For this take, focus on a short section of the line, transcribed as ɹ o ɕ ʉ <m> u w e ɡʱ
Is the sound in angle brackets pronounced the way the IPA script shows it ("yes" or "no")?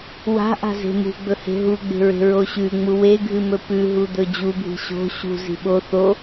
no